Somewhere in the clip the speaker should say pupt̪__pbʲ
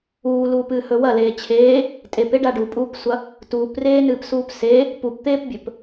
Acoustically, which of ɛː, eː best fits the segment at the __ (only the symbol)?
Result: eː